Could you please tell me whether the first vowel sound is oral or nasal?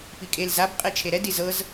oral